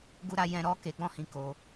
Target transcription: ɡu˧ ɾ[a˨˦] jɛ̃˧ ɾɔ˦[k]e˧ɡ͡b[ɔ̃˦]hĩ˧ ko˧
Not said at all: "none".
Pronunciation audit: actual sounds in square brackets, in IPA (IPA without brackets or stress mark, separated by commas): a˦, k, ɔ̃˦